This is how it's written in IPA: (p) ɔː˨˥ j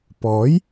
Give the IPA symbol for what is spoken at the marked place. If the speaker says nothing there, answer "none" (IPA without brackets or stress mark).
p